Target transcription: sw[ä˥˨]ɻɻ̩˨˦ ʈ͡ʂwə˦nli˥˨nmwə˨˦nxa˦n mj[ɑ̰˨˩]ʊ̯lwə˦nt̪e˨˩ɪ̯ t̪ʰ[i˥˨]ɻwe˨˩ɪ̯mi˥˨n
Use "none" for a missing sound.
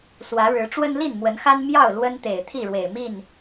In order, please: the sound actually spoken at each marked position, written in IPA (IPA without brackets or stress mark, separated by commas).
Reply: ä˨˦, ɑ˥˨, i˥˨